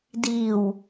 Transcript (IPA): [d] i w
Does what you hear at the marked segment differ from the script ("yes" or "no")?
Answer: no